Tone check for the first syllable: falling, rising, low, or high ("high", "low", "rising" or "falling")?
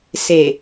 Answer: low